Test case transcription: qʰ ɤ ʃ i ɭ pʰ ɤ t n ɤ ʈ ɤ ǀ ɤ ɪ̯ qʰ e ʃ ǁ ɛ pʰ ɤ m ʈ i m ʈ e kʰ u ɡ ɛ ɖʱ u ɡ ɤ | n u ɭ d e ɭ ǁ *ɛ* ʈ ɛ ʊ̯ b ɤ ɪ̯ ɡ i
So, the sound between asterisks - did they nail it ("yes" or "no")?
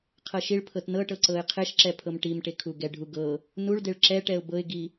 yes